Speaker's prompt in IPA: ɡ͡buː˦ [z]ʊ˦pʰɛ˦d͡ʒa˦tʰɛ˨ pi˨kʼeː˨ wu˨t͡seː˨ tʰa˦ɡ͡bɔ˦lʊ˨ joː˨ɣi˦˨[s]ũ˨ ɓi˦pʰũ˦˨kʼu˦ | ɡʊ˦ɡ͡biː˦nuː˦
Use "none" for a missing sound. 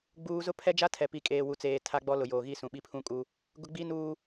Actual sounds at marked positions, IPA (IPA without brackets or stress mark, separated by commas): z, s